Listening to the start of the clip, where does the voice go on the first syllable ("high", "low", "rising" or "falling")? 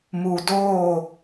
low